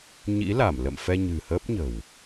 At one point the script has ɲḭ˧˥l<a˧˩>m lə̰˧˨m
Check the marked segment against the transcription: correct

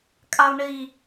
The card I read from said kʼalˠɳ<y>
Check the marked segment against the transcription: incorrect: i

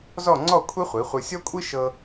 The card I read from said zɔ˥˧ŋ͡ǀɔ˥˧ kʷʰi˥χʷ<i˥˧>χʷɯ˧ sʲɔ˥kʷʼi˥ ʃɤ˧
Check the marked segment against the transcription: incorrect: i˩˧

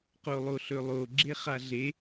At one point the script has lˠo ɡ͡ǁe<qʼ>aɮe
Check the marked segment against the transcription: incorrect: χ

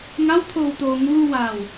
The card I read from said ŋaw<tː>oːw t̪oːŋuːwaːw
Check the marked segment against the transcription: incorrect: t̪ʰ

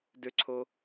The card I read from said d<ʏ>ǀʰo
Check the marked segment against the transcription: correct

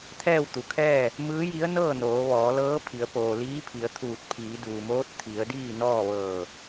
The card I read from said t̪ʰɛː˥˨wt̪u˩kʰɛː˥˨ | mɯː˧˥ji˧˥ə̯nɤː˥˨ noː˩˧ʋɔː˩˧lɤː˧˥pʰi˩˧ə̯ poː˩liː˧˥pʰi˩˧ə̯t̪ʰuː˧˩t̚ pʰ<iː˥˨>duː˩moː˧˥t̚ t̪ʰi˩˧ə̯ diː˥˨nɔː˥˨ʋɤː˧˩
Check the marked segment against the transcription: incorrect: iː˩˧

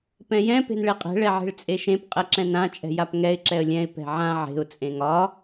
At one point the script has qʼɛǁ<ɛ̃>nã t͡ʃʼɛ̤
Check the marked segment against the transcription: correct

